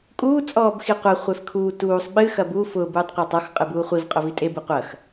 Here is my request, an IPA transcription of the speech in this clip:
kʼ uː t͡sʼ ɔː b x i qʷ ɐ χʷ e f kʰ uː t uː sˤ ɓ ɨ x ɐ b u f ʊ b uː tˤ qʷ ɐː tˤ ɔ x qʼ ɨ b uː χʷ i v qʼ ʊ v i tʼ e b ɨ qʷ ɐ x

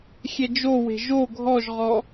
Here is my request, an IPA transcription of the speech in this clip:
xʲ ɛ d͡ʒ o w e̤ ʒ o ɡʱ ɔ ʒ ʁ ɔ

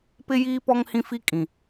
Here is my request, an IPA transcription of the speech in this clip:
p ɪ˦ j iː˦ p ɔ˦ ŋ h ĩ˦ f i˦ kʼ ĩ˨

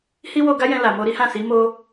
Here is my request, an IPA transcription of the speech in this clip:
h i˦ w o˧ ɡ a˦ j ɛ̃˧ l a˨ m o˧ ɾ i˦ h ã˦˨ s i˨˦ m o˧

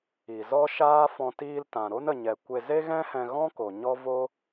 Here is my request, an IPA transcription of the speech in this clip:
i˨ z ɔ˦ ʃ aː˦ f ɔ̃˧ t iː˧ l t ã˨ ɾ o˦ n ə˧ ɲ ɛ˧ kʷ e˧ z e˦ ɣ ɛ̃˦ h ɛ̃˧ ɣ ɔ̃˦ k o˨ ɲ ɔ˦ v o˦

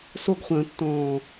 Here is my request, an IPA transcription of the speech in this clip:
s o ɡ χʷ ə̃ː tː ɔ̃ː

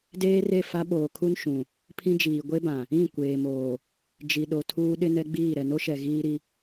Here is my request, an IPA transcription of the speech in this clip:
d eː˦ r e˦˨ f a˦ ɓ oː˨ kʰ u˦ n ʃ ũ˨ | pʰ ĩ˦ d͡ʒ iː˨ ɡʷ e˦ b ã˨ | ĩ˦˨ kʷ eː˨ m oː˨ | d͡ʒ i˨ ɗ o˨ tʰ uː˦ ɗ ɪ˦ n ɛ˦ ɡ͡b iː˦˨ ɾ ɛ˨ n o˦ ʃ ɛ˨ ɣ iː˦ ɾ i˦

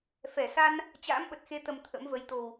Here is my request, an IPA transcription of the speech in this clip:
f ɛ˧˩ s a˧ n | t͡ɕ a̰ː˧˥ m ɓ ə˨˩ t̚ x e˨˦ t̪ ə˨˩ m t̪ʰ ə̰˧˥ m v ə˨˦ j t̪ o˨˩ w

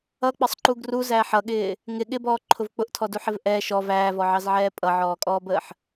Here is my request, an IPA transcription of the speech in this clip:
ʌ k͡p ə sˤ ǃ u ɡ r u z æː ħ ʌ ɠ ɪː | ŋ ɪ ɠ ɪ b ɔː ǃʰ ʊ v k͡p ʊ ʔ tʰ ɔ d u ħ ɪ v ʔ ɛ ʃ ɔ v æː v ɔ ʕ ɑ z ʕ ɛː pʼ ʌ ʕ ɔː kʼ ɔː b əː ħ

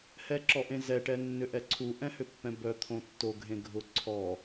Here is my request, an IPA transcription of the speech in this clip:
h ɛ ǁ ɔ ʔ ẽ z ɛ ʈ ɛ nː ʏ ʔ ɛ ǀʰ u ʔ ɛ̃ h ʏ pː ɛ̃ b œ t̪ʰ õ tː o ɡʱ ẽ ɡʱ ʊ ǀʰ ɔ

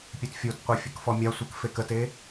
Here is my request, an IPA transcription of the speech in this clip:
pʲ e t fʲ o t qʷ e fʲ ɘ k f ɔ mʲ a sʷ ɘ k f e k ə t e

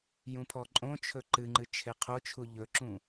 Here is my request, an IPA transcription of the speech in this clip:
j ũ pʰ ɔ ǃʼ õ t͡ʃʰ ɵ ǃ ɨ ŋ͡ǃ ɨ t͡ʃʰ e qʰ o t͡ʃʰ u ʎ ɵ ǁ ũ

